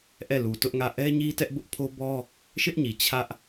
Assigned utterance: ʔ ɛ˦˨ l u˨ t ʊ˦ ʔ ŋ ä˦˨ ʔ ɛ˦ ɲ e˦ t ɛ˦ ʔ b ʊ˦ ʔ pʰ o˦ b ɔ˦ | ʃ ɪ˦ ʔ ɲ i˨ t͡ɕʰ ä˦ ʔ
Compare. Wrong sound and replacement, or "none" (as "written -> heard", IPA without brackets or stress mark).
e˦ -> i˦